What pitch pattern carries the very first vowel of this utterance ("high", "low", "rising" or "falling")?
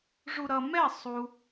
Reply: low